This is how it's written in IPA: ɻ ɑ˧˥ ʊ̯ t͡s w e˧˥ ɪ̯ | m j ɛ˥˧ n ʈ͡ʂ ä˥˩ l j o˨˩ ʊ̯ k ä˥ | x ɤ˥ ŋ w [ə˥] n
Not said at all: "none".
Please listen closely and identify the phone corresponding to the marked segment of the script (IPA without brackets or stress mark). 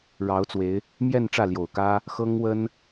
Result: ə˥